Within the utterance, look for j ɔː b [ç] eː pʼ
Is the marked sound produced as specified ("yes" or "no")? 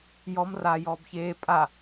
yes